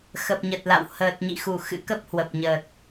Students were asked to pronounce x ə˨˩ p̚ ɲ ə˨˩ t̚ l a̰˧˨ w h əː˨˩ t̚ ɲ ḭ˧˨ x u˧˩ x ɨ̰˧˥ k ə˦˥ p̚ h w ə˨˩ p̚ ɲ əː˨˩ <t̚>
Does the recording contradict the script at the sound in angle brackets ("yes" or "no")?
no